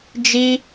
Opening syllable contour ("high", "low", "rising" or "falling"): high